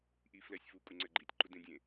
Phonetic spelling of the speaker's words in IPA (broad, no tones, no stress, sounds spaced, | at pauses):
ʔ i f l ɛ sʲ f u kʼ u ŋ͡ǀ ɛ ɡ͡ǃ i tʲ ǃ u d ẽ dʲ ẽ